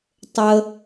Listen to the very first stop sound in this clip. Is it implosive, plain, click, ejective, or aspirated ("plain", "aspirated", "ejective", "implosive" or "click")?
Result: plain